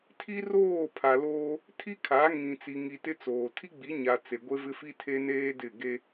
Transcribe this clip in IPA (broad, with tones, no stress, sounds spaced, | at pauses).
tʰ i˦ r oː˦˨ pʰ a˨ l oː˦ | tʰ i˦ kʰ a˨˦ ŋ ĩ˨ t͡s i˨ ŋ i˨ t ɪ˦ t͡s oː˨ tʰ i˦ ɡ͡b i˨˦ ɲ a˨ t͡s e˨ ɡʷ e˦ v ɪ˦ f i˦ tʰ e˦ n eː˦ d ɪ˦˨ ɡ e˦